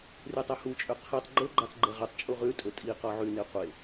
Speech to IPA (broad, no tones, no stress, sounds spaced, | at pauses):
r y tˤ œ h u t͡ʃʼ ø qʰ i tˤ ɡ͡ǃ o ɡ͡ǃ ɑ t ɡ͡ǃ ɛ ʁ ɵ tˤ t͡ʃʼ u ʁ ʉ tʼ ɵ tʼ i q ɔ ʕ y n e qʷ e